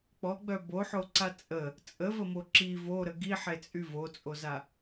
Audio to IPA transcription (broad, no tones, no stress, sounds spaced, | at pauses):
k͡p ɔ ɡ͡b œ b o ħ o ǀ a t͡sʼ ə | t͡sʼ ə v ə m o ǁ i v o ɾ ə ɡ i ħ e t͡sʼ y v o t͡sʼ o z a